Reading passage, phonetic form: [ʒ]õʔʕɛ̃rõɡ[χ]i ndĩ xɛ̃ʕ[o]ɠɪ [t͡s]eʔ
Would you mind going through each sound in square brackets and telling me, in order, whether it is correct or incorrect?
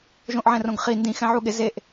correct, correct, incorrect: u, incorrect: z

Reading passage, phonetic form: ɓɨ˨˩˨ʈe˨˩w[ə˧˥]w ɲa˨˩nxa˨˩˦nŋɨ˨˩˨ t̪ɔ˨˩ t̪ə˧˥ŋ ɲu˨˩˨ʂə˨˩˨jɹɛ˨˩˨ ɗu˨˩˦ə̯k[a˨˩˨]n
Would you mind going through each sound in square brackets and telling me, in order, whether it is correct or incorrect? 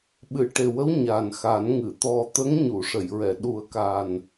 correct, incorrect: a˨˩

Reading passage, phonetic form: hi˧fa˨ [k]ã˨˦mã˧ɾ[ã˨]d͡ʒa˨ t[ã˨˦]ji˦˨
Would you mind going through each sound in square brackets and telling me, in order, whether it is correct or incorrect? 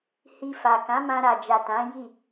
correct, incorrect: a˨, correct

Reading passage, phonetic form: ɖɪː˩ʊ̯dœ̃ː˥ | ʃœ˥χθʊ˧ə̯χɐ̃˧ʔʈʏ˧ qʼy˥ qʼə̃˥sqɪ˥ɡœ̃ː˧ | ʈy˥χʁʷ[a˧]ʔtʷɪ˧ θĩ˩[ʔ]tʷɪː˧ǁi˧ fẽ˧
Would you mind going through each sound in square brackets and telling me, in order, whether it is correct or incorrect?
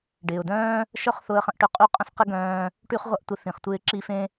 incorrect: ɐ˧, incorrect: χ

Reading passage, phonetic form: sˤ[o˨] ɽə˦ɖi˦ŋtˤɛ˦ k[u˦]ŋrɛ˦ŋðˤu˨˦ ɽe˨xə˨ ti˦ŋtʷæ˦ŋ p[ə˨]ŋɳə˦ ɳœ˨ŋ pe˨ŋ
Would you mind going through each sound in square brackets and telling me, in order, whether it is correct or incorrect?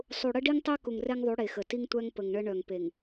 incorrect: u˨, incorrect: u˨, correct

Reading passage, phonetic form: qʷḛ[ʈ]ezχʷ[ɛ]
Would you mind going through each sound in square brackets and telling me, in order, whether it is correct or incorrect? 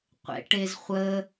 correct, incorrect: ə

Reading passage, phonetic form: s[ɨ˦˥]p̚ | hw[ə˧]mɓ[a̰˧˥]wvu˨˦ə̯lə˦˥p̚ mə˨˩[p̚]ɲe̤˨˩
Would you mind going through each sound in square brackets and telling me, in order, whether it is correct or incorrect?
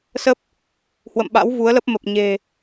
incorrect: ə˦˥, incorrect: ə̰˧˨, correct, correct

